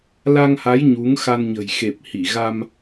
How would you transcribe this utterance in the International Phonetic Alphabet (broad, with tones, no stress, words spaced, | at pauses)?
la˧ŋha˨˦j ɲu˨˦ŋ xa˧nɲə̤˨˩j xe˨˩p̚hi˧˩ ɣa˧m